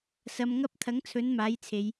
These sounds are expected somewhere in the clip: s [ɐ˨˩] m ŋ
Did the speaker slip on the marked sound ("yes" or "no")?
yes